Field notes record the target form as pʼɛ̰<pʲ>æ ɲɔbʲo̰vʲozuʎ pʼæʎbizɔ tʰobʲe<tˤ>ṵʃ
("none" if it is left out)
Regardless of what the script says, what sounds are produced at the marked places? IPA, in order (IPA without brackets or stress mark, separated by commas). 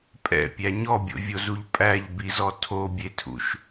pʲ, tʰ